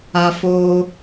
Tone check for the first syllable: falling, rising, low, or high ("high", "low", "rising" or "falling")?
high